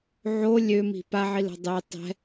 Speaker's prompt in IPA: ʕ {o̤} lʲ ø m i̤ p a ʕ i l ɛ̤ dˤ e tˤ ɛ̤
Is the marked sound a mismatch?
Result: yes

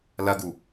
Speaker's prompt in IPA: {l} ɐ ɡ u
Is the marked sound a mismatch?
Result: no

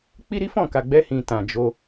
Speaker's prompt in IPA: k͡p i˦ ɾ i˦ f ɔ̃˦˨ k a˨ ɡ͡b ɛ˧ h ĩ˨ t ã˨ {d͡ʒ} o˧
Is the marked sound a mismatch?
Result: no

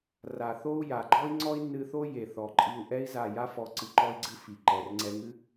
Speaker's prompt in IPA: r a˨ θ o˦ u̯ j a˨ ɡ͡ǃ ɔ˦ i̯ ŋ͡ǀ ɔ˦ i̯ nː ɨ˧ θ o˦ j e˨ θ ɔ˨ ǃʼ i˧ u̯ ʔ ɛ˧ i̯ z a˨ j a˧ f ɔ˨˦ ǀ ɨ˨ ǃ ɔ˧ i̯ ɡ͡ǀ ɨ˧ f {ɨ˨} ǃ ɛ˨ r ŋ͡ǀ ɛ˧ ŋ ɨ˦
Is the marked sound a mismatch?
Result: yes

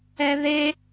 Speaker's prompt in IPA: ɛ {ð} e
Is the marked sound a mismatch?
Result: no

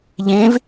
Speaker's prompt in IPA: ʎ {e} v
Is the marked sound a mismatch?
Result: yes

